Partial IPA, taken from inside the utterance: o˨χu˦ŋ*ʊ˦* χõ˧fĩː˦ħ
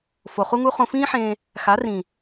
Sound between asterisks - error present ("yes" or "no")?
yes